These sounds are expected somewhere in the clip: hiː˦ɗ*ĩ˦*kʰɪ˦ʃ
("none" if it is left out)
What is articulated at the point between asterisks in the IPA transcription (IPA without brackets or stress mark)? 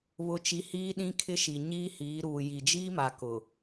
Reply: ĩ˦